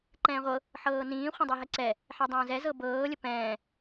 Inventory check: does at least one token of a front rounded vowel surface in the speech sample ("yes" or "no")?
no